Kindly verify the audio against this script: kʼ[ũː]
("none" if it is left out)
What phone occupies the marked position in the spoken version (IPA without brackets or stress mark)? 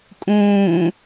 ũː